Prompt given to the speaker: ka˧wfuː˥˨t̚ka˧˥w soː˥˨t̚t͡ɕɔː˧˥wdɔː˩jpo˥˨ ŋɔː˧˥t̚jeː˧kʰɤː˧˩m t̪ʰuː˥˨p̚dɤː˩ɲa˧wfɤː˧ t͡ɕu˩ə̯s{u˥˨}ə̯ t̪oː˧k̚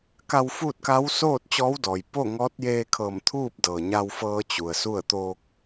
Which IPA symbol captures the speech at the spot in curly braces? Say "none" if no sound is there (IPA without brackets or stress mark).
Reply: u˥˨